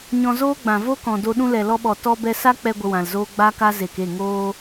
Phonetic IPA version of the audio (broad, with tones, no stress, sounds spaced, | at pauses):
ɲ ɔ̃˧ z oː˦ ɡ͡b ã˨ v o˦ k ɔ̃˨ d o˧ ɗ ũ˧ l ɛ˨ l ɔ˧ ɓ ɔ˨ t ɔ˦ b ɛ˦ s a˦ k͡p ɛ˧ ɡʷ ə˧ w ã˨ l z oː˦ ɡ͡b a˦ k a˦ z e˨ k e˦˨ ŋ oː˦